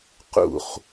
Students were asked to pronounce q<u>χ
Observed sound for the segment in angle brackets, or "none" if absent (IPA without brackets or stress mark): ṵ